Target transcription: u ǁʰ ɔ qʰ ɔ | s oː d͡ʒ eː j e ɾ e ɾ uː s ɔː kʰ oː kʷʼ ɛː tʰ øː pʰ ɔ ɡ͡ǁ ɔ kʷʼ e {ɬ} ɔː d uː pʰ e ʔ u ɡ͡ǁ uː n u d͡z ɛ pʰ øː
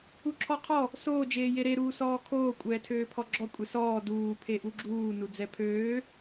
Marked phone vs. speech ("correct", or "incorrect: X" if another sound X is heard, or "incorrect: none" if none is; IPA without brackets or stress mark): incorrect: s